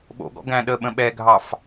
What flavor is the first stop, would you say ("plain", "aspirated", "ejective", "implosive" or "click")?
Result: implosive